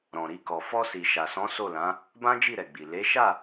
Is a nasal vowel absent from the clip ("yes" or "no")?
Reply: no